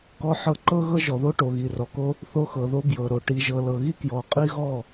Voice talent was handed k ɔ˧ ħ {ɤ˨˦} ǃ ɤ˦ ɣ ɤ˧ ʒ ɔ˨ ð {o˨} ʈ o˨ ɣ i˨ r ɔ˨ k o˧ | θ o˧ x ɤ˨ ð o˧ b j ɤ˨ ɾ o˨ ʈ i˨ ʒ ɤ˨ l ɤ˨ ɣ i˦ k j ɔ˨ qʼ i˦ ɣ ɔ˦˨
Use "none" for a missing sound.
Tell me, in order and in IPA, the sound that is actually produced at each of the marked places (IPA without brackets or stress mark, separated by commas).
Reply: ɤ˧, o˧